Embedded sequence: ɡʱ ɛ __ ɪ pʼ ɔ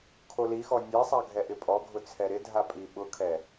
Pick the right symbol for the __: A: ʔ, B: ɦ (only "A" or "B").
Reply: A